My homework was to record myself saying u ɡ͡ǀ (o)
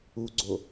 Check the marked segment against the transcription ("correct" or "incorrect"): correct